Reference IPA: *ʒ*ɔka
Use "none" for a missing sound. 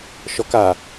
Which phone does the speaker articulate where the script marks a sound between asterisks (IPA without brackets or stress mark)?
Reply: ʃ